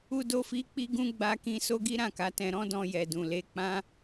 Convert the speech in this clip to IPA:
u˦do˦fi˦ k͡pi˦ɡũ˦ ɡ͡ba˦kĩ˦ so˦ɡi˦ ɾã˦˨ka˨˦tɛ̃˧ ɾɔ̃˦dɔ̃˧jɛ˨ dũ˨ le˨˦k͡pã˦

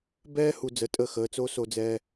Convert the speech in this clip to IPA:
bɛː˥ hu˧ d͡zə˧tʼəː˥˩ xəː˩˥t͡so˥so˧ d͡zɛ˧

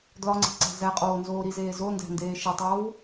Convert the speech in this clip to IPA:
dlɒŋ͡ǀe̤ ǀæ̤zæqʼoː nzoːɾizeː zondæ̤ ndeːʃetˤoːw

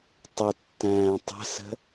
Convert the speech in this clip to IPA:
tˤətːæ̃ː tˤə̤sə̤

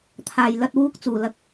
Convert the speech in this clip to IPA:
t̪ʰaː˨˩j lɐ˨t̚wuː˨˥k̚ t͡suː˨˩lɐ˨k̚

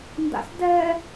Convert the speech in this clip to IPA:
nda̰sdɛ

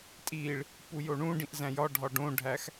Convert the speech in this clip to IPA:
tʼiɭ | pujoɳũɖĩʔ zæ̃jɒɖʱɒ ɖõɖʱæx

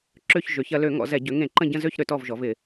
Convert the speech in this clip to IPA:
ǁø˦˨ç ʒø˩˧ç ɐ˩˧lø˧˩˧ŋɔ̰˩˧zɛ˧˩˧ ɟø˩˧ŋẽ˧˩˧ǃə̃˦˨ ɟə̃˦˨ zø˦˨ç ɾø˩˧tɔ˦˨vʒɔ˩˧v ɪ˧˩˧

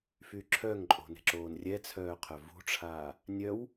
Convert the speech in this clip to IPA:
fyǁʰœŋǃʼo̤ ne̤ǁoːnrʲɛt͡sʰœː qʰœvṳʈ͡ʂʰaː | nʲœw

